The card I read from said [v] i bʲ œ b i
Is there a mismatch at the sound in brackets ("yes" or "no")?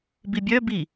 yes